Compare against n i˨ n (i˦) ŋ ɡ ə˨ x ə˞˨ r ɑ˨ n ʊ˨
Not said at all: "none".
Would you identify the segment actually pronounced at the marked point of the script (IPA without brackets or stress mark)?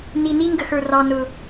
i˦